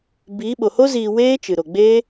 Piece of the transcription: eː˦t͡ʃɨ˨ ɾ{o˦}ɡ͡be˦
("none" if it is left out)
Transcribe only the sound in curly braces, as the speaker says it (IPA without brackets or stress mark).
o˨